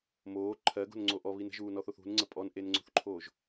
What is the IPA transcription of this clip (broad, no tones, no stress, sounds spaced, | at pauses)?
m oː ǃʰ ɜ ɡ o̤ n ŋ͡ǀ o ʔ ɔ β i n ə̤ ʒ uː n ɔ θ o θ ṳ n ŋ͡ǀ ə pʼ ɔ n ʔ e n ŋ͡ǀ o̤ θ ǃʰ oː ʒ